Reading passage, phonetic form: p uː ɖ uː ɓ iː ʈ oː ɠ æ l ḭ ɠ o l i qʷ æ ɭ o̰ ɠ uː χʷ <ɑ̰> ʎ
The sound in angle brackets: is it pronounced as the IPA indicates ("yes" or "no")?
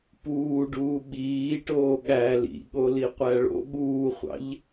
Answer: yes